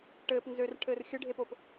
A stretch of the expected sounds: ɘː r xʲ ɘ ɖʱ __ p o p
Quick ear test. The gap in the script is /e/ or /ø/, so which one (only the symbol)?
e